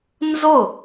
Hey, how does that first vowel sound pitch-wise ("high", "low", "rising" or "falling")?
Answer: falling